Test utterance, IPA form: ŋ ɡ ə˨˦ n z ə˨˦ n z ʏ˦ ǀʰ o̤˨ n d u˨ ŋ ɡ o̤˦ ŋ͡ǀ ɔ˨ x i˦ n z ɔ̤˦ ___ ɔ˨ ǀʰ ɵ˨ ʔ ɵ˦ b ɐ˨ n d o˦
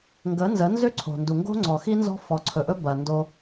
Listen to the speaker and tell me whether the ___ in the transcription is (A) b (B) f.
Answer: B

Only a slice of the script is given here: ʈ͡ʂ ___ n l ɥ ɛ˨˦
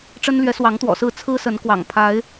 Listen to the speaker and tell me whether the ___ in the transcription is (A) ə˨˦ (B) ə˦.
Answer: B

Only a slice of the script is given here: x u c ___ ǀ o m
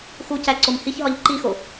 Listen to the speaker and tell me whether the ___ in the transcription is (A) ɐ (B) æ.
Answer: B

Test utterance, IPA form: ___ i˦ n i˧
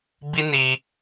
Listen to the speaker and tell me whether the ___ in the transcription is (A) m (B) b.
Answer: B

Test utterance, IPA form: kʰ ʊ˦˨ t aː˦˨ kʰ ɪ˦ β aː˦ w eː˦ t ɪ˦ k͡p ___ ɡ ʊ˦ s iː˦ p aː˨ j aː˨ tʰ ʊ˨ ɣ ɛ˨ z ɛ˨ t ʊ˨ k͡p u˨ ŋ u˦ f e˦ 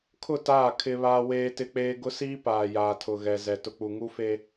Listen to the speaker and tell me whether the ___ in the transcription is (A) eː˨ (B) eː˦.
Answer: B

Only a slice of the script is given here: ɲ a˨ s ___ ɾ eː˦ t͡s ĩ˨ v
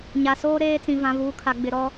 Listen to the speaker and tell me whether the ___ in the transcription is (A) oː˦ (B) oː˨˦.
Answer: A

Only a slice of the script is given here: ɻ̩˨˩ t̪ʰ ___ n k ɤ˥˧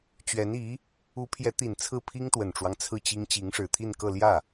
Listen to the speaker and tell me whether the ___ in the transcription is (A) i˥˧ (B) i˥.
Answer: A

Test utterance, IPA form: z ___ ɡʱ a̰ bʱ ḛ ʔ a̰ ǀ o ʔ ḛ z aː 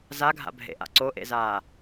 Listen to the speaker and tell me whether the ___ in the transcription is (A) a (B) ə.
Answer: A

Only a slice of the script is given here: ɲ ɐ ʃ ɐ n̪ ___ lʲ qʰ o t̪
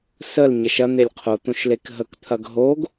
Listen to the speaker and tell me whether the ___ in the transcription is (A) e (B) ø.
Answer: A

